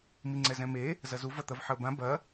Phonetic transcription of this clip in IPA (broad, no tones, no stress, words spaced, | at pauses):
miŋ͡ǀɛzɛ̃me | zɐzu vɐt̪ɐvħəo̯bã bɐ